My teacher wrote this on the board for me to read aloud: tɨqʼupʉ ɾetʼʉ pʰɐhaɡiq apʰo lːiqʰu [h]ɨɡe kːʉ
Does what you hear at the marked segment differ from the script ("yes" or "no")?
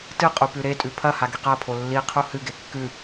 no